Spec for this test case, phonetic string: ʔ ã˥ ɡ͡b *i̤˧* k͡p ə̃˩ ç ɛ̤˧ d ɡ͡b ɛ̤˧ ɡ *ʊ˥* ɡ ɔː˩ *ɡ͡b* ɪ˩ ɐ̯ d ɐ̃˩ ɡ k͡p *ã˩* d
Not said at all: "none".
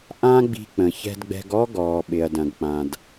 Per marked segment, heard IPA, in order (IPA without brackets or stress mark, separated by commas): i̤˧, ɔ˥, ɓ, ã˩